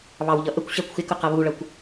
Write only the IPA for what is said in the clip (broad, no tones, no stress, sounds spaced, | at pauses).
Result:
β ɑ w ʎ ʌ ʔ ə kʷ ɕ æ kʷ x ɪ k ʊ q ʌ β u ɭ ʌ kʷ